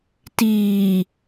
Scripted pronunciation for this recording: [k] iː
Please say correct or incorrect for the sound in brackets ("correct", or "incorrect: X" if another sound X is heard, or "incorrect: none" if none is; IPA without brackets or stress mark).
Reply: incorrect: t